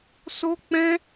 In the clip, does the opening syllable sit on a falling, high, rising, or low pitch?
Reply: high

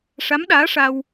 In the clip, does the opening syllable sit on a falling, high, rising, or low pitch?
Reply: rising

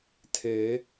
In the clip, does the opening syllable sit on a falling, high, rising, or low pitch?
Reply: rising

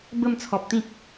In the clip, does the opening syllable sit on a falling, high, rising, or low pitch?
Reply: falling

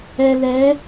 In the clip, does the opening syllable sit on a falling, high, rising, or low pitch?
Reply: low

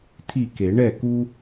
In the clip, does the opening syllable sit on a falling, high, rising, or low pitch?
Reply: falling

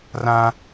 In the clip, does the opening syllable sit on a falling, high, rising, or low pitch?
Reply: high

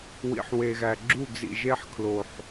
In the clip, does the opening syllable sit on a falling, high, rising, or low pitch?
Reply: low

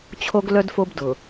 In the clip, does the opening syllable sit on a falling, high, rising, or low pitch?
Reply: high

